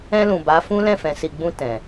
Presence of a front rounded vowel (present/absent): absent